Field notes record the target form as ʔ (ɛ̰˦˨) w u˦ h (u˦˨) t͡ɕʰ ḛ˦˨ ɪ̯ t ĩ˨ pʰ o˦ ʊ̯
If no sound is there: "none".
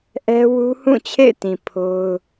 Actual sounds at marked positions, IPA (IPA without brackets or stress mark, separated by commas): ɛ˦, ũ˦˨